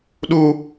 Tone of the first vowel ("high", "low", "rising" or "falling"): high